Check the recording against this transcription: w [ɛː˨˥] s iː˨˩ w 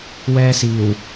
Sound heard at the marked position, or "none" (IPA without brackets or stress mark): ɛː˧